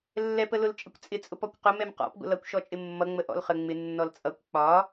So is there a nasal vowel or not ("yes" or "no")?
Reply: no